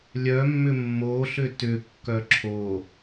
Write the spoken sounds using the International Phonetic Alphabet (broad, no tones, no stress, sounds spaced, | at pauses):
lʲ œ mː ʏ mː o ɬ ʏ t ʏ kː œ ǁʰ o